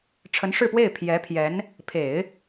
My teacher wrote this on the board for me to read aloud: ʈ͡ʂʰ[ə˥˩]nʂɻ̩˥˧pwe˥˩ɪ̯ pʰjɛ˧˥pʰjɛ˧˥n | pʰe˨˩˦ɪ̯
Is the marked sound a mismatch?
yes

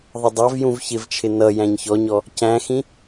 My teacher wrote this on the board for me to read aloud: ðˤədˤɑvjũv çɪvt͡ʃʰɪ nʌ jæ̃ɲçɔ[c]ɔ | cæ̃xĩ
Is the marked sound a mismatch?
yes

